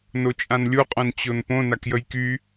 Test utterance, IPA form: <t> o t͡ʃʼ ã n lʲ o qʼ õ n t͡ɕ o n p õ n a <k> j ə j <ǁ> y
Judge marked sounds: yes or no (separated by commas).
no, yes, no